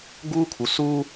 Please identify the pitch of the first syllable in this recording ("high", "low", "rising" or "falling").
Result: high